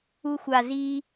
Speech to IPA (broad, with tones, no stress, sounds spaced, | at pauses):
u˧ xʷ a˨˩ z iː˧